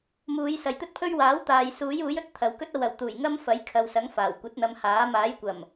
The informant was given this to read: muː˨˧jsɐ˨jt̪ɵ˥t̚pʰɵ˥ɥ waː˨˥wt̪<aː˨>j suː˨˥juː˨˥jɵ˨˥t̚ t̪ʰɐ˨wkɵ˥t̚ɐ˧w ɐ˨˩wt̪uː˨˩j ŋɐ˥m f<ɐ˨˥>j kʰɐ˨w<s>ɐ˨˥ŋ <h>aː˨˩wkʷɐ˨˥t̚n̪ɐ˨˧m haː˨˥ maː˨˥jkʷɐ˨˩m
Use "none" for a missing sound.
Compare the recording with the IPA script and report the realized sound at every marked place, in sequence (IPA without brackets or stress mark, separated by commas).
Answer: aː˨, ɐ˨˥, s, f